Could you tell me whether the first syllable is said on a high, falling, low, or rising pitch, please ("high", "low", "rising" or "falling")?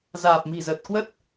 low